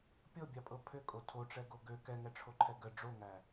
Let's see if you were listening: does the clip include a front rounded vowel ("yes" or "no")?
yes